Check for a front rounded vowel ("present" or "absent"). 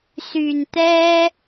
present